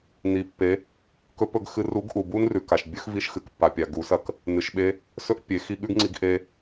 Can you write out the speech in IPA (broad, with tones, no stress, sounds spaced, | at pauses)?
n i˩ pː e˩˧ | k ɵ˧˥ p ɵ˧ ɡ x ɨ˧ r u˧˥ ɡ ʔ u˩ b u˥ n r ʉ˩ k a˩ ʃ bʲ ɵ˥ x v i˧ ʃ x ɨ˩ k pː a˩ pʲ a˩ ɡ u˩˧ s ɐ˧˥ k | n ɨ˩ ʃ ɓ e˧ | s ɵ˥ ʔ pʲ e˩˧ x i˧ ɠ ʉ˥ ɡ ŋ͡ǀ i˧ ɡ ʔ e˧